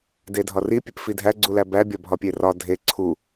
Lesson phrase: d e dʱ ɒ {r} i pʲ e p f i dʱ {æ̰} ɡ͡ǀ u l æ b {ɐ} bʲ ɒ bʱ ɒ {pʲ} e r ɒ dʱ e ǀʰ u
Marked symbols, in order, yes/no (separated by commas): yes, no, no, yes